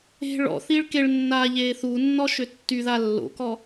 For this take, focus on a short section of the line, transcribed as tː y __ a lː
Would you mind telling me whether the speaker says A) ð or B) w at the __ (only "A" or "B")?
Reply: A